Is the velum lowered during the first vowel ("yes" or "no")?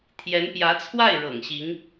no